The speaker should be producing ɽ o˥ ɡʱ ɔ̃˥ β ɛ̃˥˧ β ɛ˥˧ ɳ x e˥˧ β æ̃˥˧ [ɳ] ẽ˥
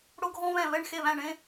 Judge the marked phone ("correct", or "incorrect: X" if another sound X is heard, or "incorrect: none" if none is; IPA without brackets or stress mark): correct